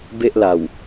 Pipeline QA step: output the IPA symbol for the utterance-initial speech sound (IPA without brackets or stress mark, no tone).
b